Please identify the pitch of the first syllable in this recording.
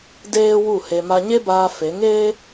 high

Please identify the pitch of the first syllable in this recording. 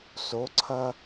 rising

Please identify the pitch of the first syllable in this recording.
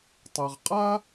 low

